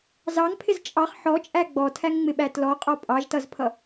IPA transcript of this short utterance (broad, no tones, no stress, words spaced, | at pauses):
zɑŋpʰɪz t͡ʃʼɑχ ħɔt͡ʃʼæ ɡ͡bɔtʰæŋŋ͡mɪɓæ tlɔqʼɔ pʼɑʒtʌzpʰʌ